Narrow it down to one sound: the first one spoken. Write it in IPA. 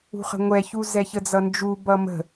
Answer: ṳ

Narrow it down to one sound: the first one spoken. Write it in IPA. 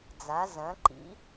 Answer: d͡z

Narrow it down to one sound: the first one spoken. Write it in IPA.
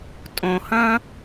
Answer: tʼ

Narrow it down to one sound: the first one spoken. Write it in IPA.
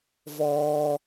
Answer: v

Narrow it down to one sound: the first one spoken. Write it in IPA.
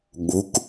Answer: ɠ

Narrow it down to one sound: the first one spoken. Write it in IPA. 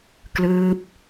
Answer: k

